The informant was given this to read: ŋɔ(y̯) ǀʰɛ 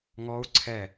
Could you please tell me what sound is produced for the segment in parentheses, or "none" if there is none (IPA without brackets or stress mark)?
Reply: u̯